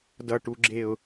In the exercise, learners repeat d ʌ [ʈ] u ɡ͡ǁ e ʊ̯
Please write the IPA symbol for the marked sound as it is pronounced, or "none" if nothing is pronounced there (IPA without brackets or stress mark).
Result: ʈ